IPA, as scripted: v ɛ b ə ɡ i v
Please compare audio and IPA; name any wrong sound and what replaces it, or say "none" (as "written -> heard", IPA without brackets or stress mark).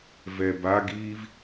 ə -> a